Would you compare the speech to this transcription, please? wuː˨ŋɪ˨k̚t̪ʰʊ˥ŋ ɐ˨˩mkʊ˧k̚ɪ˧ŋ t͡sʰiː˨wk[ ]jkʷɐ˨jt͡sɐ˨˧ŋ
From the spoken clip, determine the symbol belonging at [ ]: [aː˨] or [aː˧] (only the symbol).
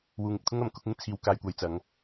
aː˨